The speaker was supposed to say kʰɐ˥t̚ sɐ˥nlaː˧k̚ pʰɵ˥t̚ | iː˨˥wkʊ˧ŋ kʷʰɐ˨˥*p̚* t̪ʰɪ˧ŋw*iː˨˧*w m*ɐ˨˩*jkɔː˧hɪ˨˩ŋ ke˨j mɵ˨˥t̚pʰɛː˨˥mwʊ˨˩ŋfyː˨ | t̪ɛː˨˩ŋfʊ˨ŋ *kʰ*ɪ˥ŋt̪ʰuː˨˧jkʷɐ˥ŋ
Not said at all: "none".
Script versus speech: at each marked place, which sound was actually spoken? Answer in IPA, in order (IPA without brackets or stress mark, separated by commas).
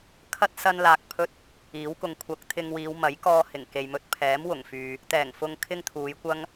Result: k̚, iː˨˧, ɐ˨˥, kʰ